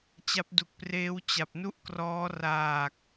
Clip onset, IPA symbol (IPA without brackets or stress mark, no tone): t͡ɕ